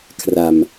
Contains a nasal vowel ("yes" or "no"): no